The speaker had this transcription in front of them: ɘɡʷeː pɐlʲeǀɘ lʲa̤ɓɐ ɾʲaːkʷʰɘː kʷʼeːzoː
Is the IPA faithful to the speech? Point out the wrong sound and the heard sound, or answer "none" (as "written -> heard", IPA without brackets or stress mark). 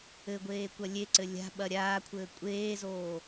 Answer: p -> kʷ